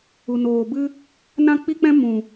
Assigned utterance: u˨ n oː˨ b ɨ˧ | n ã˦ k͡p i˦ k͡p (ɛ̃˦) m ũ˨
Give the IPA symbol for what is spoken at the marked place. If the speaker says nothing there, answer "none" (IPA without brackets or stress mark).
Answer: ɛ̃˦